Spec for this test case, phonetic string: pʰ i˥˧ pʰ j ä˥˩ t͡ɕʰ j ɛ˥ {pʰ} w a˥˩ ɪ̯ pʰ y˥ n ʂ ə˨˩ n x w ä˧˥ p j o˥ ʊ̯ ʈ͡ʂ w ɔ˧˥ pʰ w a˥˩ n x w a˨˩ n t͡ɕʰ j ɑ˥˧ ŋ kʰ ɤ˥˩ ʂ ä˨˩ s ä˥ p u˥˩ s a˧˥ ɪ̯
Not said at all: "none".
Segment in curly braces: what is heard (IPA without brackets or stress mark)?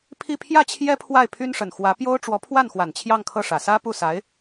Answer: pʰ